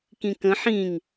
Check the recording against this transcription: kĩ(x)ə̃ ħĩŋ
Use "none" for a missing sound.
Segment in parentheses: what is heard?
k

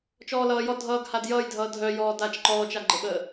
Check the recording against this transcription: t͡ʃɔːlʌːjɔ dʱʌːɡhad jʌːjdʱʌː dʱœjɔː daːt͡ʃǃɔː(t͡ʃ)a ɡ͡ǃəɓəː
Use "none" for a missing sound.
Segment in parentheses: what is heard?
t͡ʃ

